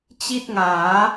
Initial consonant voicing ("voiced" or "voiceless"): voiceless